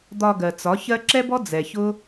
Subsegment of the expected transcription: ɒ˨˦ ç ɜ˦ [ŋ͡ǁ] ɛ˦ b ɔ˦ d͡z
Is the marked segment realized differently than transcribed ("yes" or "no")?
yes